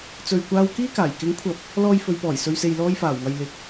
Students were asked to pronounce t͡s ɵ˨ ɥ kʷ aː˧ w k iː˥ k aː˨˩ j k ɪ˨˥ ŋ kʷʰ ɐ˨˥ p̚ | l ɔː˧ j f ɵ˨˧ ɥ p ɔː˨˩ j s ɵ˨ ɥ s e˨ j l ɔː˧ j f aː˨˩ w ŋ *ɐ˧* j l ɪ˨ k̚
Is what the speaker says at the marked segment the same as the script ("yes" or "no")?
no